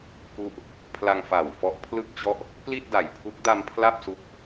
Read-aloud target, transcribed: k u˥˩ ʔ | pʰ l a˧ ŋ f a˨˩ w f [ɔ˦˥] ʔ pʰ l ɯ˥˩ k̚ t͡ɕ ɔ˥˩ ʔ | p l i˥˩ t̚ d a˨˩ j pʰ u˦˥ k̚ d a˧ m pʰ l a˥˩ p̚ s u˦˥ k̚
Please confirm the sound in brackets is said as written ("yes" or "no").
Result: yes